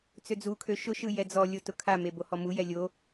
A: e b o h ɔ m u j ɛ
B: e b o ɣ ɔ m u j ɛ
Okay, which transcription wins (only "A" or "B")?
A